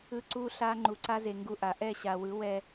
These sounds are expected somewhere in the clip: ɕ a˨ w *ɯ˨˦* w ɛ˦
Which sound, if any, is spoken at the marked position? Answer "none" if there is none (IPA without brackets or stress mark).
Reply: ɯ˨˦